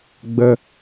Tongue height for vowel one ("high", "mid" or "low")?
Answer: mid